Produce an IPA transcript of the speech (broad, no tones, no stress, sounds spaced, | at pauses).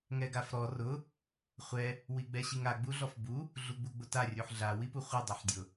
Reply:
ŋ ɛ ɡ a f ɾ ɔ r ʊ | χʷ ɛ | w i ɡ͡b ɛ ɕ i ŋ a ɡ͡b u ɮ ɔ f b u | ɮ u ɡ͡b u ɡ͡b ʊ t a rʲ u ħ ɮ a w i p u χʷ ɛ dˤ ɛ ħ dʲ ʊ